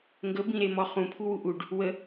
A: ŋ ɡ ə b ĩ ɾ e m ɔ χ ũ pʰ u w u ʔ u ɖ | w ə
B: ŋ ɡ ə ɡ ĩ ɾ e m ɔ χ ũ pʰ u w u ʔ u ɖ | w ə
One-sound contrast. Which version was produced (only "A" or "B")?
A